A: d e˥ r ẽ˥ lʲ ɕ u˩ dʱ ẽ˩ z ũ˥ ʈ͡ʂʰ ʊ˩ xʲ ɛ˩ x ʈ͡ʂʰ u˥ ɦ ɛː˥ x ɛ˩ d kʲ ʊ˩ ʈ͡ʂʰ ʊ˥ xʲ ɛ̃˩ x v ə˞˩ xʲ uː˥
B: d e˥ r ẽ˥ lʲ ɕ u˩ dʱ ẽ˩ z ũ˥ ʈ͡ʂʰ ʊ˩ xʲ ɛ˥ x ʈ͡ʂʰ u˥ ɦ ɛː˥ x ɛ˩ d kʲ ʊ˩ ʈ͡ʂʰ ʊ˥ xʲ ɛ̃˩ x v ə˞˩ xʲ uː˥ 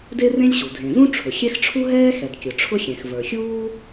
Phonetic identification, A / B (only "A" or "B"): B